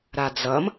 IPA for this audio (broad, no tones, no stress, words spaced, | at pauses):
ɾad͡zʌm